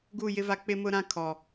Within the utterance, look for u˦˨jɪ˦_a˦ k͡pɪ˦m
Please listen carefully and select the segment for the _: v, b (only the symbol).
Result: v